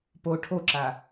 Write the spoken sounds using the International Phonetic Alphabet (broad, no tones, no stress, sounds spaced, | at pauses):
p o ʈʰ o ǁ a